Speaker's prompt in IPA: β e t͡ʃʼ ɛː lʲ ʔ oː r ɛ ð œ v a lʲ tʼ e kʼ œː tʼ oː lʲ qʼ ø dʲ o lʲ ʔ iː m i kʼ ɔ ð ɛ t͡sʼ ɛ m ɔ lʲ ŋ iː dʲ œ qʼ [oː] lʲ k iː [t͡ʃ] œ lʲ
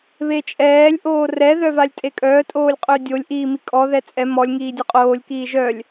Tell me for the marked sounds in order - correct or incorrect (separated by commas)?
correct, incorrect